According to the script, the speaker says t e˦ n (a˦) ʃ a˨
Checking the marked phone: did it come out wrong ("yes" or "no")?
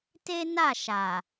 yes